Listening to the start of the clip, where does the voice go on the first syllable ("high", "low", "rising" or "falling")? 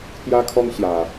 high